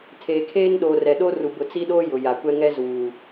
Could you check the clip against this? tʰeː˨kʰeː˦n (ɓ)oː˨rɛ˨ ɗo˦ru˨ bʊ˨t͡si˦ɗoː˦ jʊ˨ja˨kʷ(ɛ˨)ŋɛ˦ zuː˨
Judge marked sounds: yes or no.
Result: no, no

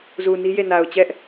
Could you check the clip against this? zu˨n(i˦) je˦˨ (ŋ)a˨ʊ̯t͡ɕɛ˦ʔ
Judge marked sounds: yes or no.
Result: yes, no

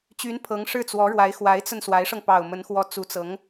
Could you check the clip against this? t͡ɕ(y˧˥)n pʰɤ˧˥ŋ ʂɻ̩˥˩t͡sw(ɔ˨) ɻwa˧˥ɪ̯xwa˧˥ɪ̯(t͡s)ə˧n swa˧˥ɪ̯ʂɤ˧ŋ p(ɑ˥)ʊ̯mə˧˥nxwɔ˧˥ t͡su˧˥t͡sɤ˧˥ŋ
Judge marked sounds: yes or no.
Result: yes, no, yes, no

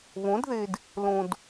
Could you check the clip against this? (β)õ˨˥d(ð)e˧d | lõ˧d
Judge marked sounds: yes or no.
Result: yes, yes

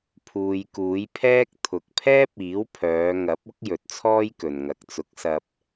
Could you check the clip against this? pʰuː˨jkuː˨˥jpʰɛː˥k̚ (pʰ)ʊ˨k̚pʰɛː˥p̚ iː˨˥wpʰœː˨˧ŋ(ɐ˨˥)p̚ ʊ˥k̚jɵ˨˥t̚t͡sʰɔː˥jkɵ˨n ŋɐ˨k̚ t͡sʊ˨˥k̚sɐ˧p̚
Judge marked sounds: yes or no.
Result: no, yes

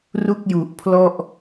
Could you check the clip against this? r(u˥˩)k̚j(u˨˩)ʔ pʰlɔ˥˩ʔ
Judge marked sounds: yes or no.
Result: yes, yes

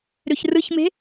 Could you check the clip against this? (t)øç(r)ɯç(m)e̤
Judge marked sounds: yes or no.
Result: no, yes, yes

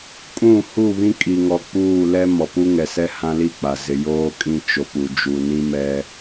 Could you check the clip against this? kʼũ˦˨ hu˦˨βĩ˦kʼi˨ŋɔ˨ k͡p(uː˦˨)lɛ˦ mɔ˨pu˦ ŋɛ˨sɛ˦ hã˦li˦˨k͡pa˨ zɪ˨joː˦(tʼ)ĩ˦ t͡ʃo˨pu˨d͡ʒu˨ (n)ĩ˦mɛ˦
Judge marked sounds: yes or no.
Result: yes, no, yes

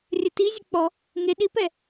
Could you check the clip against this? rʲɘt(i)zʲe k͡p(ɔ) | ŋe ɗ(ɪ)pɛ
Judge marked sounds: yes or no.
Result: yes, yes, no

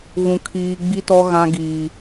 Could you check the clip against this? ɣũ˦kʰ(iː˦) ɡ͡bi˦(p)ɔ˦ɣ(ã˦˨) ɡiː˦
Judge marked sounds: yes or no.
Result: yes, no, no

